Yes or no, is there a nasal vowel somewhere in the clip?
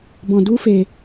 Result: yes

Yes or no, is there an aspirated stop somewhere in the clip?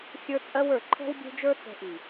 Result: yes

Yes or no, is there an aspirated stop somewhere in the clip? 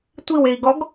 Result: no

